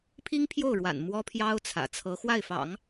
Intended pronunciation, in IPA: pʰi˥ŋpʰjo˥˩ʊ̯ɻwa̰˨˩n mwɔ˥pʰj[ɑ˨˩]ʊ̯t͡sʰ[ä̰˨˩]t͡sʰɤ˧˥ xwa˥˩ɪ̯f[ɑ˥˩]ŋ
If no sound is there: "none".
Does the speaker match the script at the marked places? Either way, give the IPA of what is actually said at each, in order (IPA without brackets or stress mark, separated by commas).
ɑ˥, ä̰˨˩, ɑ̰˨˩˦